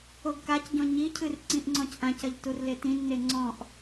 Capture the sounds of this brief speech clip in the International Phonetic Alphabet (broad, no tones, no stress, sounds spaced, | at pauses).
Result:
o ɡ k a c ɟ ɔ̃ ɲ i cʰ ɨ r ǀ ĩ ʔ ŋ͡ǀ ɔ̃ c ʔ ã c ɐ ʎ t u r l e t ĩ nː e ŋ͡ǀ ɔ̃ ʔ